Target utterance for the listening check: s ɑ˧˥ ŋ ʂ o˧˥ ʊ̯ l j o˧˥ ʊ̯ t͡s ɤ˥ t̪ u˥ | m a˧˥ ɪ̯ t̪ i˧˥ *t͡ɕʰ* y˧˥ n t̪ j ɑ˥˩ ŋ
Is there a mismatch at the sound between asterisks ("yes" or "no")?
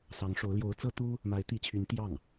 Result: no